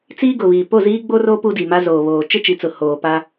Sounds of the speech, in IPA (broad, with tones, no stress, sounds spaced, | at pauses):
t͡s iː˦ ɡ ʊ˨ β iː˨ p o˦˨ z iː˦ ɡ͡b o˦ r oː˦ p u˦ d i˨ m a˦ z oː˨ β oː˨ t͡ʃ ɪ˦ t͡ʃ i˨ t͡s ʊ˨ h oː˨ p a˦